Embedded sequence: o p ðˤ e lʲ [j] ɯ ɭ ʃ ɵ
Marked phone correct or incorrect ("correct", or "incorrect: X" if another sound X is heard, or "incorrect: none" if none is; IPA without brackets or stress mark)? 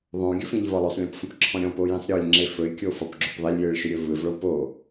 correct